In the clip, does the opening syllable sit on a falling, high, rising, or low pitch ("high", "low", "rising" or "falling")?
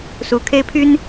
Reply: low